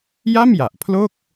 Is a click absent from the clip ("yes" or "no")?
yes